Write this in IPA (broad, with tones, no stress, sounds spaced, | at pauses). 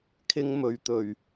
kʰ ɪ˥ ŋ m ɵ˨˧ ɥ t̪ ɵ˨˩ ɥ